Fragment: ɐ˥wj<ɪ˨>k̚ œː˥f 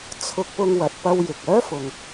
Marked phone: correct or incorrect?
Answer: correct